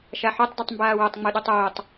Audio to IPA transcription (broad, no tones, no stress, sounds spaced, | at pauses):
ʃ a ħ o tˤ d œ tˤ m b aː w œ tˤ ŋ͡m o ɗ o tˤ oː tˤ